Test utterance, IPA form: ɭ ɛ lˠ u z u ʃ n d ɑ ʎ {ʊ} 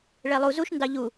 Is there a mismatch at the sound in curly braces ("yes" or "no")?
yes